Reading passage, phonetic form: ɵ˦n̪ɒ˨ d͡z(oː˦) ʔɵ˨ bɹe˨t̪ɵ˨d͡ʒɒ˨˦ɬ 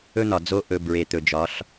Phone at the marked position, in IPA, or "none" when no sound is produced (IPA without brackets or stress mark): o˦